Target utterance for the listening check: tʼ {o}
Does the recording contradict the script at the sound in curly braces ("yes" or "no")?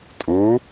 yes